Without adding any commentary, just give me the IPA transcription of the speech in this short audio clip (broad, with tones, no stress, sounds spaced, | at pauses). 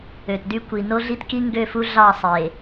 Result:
ø˨ t d y˦ kʷ i˨ n o˦ ɮ i˦ t k i˦ ŋ ɡ ø˦˨ f u˦ ɮ ɑ˦˨ sˤ e˨